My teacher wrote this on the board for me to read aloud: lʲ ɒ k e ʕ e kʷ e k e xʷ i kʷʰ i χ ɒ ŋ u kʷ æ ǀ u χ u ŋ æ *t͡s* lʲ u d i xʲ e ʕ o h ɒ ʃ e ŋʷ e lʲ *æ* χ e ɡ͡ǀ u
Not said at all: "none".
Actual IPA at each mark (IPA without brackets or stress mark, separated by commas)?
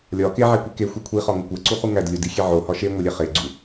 d, æ